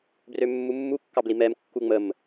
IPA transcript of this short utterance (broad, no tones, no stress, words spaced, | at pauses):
brømːumːu kːɑblimɛm kːuŋ͡məm